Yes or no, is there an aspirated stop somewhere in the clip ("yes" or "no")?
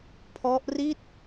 yes